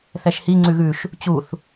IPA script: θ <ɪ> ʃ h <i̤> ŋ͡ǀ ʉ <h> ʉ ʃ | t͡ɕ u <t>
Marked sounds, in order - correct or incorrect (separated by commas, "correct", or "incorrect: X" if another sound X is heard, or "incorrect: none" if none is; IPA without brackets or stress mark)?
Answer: incorrect: ɛ, incorrect: i, incorrect: ɣ, incorrect: θ